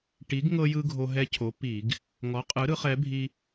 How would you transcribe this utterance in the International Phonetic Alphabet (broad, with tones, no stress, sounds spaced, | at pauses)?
ʈ i˨˥ ɡ ŋ ɤ˦ j ɯ˦ ɡʱ o˦ ɦ ɛ˦ cʰ o˨˥ p i˧˩˧ ɡ | ŋ ɔ˨˥ qʼ ɯ˨˥ ɾ ɯ˨˥ χ ɛ˨˥ bʱ i˦